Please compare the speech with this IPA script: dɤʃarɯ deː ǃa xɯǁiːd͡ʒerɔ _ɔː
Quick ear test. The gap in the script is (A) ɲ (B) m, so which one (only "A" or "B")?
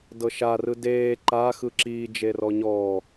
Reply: A